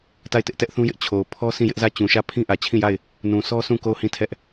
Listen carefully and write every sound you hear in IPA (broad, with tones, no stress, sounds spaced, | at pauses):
t a˦˨ ɪ̯ t ɪ˦ ʔ t ɛ˦ ʔ θ ũ˦ j ɪ˦ ʔ t͡ɕʰ o˨ ʊ̯ pʰ ɔ˦ s ĩ˦˨ j ɪ˦ ʔ z ä˦˨ t͡ɕ ũ˨ ʃ ä˦˨ pʰ ĩ˦ ʔ ä˨ t͡ɕʰ ĩ˦˨ j a˦˨ ɪ̯ | n ũ˨ sʰ ɔ˦ sʰ ũ˦˨ k o˦˨ ʊ̯ h ĩ˦˨ tʰ ɛ˦ ʔ